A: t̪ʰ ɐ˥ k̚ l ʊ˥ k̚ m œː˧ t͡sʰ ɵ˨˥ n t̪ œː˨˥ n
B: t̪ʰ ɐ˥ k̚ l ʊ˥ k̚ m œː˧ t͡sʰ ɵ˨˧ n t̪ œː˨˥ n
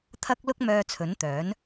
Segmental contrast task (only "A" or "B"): A